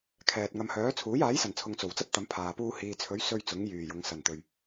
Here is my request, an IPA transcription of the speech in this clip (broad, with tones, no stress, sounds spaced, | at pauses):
kʰ ɛː˨ t̚ ŋ ɐ˧ m h œː˨˥ t͡sʰ uː˨˥ j aː˨˥ j s ɐ˨˩ n t͡sʰ ʊ˨ ŋ t͡s o˨˩ w t͡s ɐ˥ p̚ t̪ ɐ˨˧ m pʰ aː˨ p uː˥ h iː˨ t͡sʰ ɵ˨˥ ɥ s ɵ˥ ɥ t͡s ʊ˨˥ ŋ j yː˨˩ j ʊ˨˧ ŋ s ɐ˨˩ n t̪ ɵ˨˩ ɥ